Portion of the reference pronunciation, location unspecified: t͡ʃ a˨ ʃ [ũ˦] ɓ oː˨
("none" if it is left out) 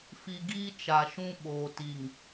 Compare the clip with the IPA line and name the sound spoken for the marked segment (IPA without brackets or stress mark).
ũ˦